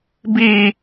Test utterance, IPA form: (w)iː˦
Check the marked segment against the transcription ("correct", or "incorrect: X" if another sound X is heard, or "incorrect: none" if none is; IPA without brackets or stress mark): incorrect: b